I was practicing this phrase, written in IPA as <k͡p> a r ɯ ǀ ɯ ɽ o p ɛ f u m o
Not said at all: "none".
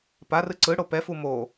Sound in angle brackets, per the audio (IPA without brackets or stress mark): p